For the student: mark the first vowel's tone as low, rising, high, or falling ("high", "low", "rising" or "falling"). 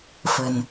low